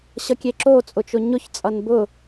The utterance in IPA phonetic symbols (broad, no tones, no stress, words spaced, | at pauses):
ɕʌkʲeǁo t͡sʼʊt͡ʃʊɲʊç t͡sʼʌnbʊ